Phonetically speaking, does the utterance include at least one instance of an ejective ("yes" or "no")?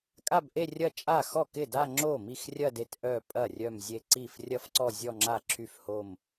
yes